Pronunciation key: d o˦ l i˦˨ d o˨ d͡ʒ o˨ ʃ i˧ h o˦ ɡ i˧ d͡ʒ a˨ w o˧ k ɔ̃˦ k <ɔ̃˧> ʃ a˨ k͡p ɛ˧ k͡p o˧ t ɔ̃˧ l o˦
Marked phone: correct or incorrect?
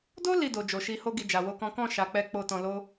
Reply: incorrect